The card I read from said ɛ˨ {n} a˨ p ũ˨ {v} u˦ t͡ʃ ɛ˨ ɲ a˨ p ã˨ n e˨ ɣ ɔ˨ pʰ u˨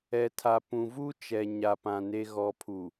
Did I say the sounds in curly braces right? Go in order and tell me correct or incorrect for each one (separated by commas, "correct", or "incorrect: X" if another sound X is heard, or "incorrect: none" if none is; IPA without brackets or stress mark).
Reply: incorrect: tʰ, correct